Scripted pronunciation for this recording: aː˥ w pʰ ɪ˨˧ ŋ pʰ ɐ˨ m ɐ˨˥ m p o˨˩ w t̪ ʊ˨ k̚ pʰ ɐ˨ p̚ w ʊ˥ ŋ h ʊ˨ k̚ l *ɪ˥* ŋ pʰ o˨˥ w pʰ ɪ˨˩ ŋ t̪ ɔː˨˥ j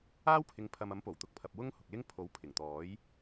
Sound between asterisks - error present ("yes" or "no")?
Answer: no